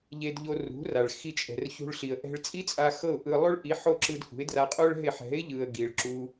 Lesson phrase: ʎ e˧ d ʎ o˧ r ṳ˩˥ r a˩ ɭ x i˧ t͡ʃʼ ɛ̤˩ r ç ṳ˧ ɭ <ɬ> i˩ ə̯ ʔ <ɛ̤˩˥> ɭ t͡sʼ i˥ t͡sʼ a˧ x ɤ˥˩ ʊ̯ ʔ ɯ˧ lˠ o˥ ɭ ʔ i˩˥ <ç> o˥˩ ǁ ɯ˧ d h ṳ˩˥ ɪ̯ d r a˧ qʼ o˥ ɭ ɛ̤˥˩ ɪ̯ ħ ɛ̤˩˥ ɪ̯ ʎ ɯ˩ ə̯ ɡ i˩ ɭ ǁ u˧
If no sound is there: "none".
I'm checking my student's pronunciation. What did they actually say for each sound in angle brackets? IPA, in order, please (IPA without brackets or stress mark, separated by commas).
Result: ɬ, ɛ̤˧, ħ